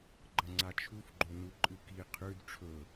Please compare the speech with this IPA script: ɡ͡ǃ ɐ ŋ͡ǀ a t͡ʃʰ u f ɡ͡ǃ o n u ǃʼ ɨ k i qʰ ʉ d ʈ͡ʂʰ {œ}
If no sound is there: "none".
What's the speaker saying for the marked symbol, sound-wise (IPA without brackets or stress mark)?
ɵ